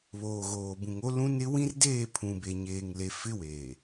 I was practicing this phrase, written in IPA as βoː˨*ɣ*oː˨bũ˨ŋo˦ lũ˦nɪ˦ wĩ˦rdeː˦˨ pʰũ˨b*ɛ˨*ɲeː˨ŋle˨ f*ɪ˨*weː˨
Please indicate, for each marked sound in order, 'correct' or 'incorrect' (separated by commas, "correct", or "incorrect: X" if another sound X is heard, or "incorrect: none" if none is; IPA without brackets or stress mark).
correct, incorrect: e˨, incorrect: ɪ˦